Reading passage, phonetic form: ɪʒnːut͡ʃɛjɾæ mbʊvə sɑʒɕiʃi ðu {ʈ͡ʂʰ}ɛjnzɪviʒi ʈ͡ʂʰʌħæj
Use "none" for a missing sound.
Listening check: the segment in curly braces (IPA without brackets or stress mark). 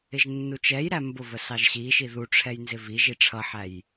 ʈ͡ʂʰ